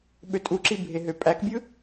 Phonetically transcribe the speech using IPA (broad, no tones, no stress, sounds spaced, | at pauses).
ɓ ø tʼ u ǁ i bʱ e ɦ ø pʼ æ k bʲ ɯ